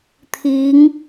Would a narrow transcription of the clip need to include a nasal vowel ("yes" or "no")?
no